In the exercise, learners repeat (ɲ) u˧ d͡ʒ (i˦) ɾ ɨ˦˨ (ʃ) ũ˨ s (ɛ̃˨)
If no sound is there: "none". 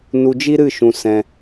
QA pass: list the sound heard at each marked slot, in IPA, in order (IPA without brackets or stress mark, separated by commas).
n, i˦, ʃ, ɛ̃˧